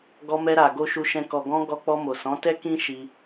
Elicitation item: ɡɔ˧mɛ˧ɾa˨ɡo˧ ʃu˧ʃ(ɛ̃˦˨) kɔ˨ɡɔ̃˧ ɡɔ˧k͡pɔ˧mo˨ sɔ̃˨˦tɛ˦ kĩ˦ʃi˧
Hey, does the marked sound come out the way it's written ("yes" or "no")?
no